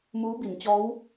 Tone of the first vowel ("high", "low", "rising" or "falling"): rising